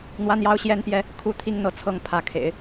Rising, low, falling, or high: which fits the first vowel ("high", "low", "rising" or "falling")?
high